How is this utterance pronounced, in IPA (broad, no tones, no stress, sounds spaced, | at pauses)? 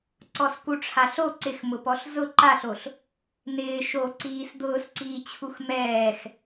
ǀ ɔ s k u ʈ͡ʂʰ a ɬ o ǀ ɪ x m ʊ p ɔ ɬ z ʊ ǃ a ɬ o ɬ | n ɪː ʃ o ǀ iː s d̪ ʊː s ǀ iː t͡ɕʰ u x m ɛː x